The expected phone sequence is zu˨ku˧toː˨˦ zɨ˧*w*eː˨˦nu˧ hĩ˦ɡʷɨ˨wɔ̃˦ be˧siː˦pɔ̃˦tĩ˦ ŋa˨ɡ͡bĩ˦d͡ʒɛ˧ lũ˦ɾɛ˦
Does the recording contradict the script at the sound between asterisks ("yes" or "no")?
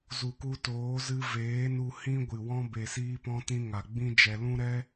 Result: yes